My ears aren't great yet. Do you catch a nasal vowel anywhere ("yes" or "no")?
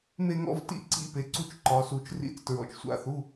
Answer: no